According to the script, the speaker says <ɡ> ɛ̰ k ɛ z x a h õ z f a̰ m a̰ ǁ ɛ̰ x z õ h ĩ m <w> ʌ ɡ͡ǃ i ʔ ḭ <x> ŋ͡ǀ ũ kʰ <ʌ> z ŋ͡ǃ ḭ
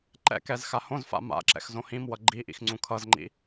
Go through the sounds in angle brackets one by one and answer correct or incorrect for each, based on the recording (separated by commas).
incorrect, correct, correct, correct